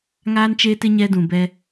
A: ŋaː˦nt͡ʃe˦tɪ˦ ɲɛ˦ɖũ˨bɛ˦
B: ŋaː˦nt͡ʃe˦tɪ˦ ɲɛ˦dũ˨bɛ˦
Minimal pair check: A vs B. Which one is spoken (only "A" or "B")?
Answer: B